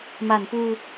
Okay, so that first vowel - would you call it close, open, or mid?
open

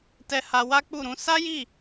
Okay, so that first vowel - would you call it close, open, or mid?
mid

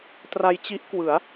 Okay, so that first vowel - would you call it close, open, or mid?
open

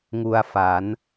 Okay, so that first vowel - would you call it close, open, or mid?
close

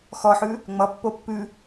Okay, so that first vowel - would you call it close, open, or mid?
mid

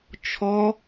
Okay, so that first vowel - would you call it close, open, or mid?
mid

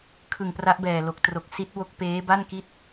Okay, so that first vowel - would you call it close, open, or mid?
close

